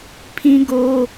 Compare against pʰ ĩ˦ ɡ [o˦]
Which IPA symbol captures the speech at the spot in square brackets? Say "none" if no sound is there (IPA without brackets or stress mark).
o˦